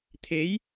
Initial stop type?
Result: aspirated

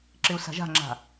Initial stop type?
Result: click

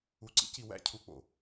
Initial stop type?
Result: click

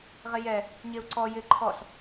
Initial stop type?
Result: click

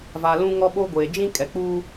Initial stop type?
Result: implosive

